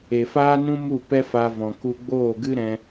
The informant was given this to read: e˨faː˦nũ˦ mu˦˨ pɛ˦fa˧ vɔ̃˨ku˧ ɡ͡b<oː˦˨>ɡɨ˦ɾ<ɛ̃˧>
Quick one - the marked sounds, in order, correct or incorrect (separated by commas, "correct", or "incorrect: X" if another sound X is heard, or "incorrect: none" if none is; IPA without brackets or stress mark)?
correct, correct